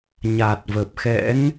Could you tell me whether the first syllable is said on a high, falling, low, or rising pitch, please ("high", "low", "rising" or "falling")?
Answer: low